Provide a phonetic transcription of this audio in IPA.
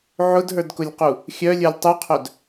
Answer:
ʕ ʊ d ɦ ə˞ d k ʊ lʲ q u | xʲ œ lʲ ə˞ lʲ tˤ u qʰ œ d

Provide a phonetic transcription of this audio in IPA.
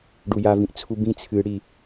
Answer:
ɖ u j a v ĩ ʔ t͡sʰ u b ĩ t͡sʰ ɨ ɽ i

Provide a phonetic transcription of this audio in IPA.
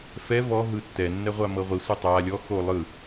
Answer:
f ɛ v ɔ ɦ ɯ tː ɛ nː ɛ ʁʷ a m ɤ ʁʷ i sʷ ɤ tˤ a lʲ ɔ x o lˠ ɯ

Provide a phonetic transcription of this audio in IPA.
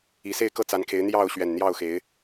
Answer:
i˨˩ s e˥˨ ɪ̯ k ɤ˥˨ t͡s a˨˦ n kʰ e˨˦ ɪ̯ n̪ j ɑ˥˨ ʊ̯ ɕ ɥ ɛ˨˩ n n̪ j ɑ˥˨ ʊ̯ x e˨˦ ɪ̯

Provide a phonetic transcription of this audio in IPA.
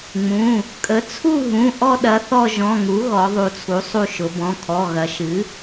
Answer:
ŋ͡m ũ˩˧˩ | kʼ ə˩˥ t͡sʰ u˦˨ ɦ ũ˩˧˩ ʔ ɔ˦˨ ɗ ɐ˩˥ θ ɔ˦˨ ʒ ɔ̃˩˧˩ ŋ u˩˥ ɣ ɔ˩˧ ðˤ u˩˧ t͡sʰ u˩˥ sˤ u˦˨ ʃ ʊ˩˧ b ɔ̃˩˧˩ kʰ ɔ˩˧˩ ɣ ɐ˩˧ ʃ ɨ˩˥

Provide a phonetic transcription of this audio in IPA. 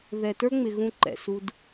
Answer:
ð ɛ˨ t ə˞˦ ŋ͡m ɪ˨ ɣ ũ˦ ǃ ɛ̰˨ s u˦ d

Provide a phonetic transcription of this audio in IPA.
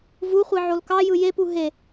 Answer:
v u χʷ i ʕ o l k ɑ j ɯ j e p u ɦ e

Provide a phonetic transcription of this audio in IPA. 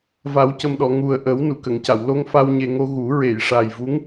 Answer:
v a˨˩˦ w c ə˨˩ m ɗ ɔ˨˩˨ ŋ u˨˩ ə̯ ʔ ə˨˩˦ w n u˨˩˨ k ə˨˩˨ ŋ c a˨˩˨ w l o˧ ŋ f a˧ w ɲ e˨˩ ŋ o˧ ɣ u˨˩˦ ɹ e˨˩˨ j ʂ a˨˩ j v u˧˥ ŋ

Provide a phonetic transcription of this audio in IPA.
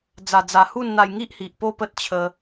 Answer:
d͡z a˨˩ d͡z a˨˩ h u˥˧ n n̪ a˧ j ŋ i˦ ʔ h i˨ ʔ p o˥˧ p ə˦ t̚ t͡ɕʰ ə˧

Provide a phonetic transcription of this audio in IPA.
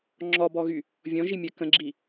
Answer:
ŋ͡ǁ ɔ b ɔ ɣ y | vʲ ɔ̃ ʒ i mʲ ɜ k ə̃ ɡ͡ǁ i

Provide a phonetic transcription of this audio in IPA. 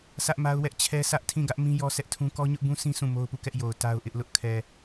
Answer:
sʰ ä˦ ʔ m a˦ ʊ̯ w ɛ˦ ʔ t͡ɕʰ ɛ˦ sʰ ä˦ ʔ tʰ ĩ˦˨ ɡ ä˦ ʔ m ĩ˦ j ɔ˦ s ɛ˦ ʔ tʰ ũ˦ k ɔ˦ ɲ ʊ˦ ʔ b ũ˦ sʰ ĩ˦ s ũ˦˨ m o˦ ʊ̯ p u˦˨ k ɛ˦ ʔ j o˨ ʊ̯ t a˦ ʊ̯ ʔ ɪ˦ ʔ l ʊ˦ ʔ kʰ ɛ˨

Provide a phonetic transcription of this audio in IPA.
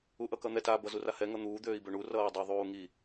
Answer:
u ʔ ʌ k ʌ n̪ ɛ t a b ʌ z u r a h ɛ ŋ ʌ n̪ uː d̪ øː i̯ b ø ɳ u r ʌː y̯ dˤ u ðˤ uː ŋ i

